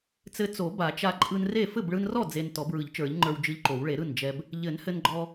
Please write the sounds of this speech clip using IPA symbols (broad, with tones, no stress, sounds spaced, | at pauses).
t͡s ɘ˧ t͡s o˨˩˦ b a˨˩˦ t͡ʃ a˧ ǃʼ ɯ˧ n r e˥˩ f ɘ˥˩ b ɭ ɯ˧ n r ɔ˥˩ d͡z e˧ n t ɔ˨˩˦ b ɹ ɯ˨˩˦ ʎ t͡ʃ ə˞˨˩˦ ʎ ŋ͡ǃ ə˞˧ w d͡ʒ ɯ˧ ʎ ǃ o˨˩˦ w ɭ e˨˩˦ ɾ ɯ˥˩ n d͡ʒ ɛ˧ b | ʎ ɘ˨˩˦ n h ɘ˧ n ɡ͡ǃ ɔ˧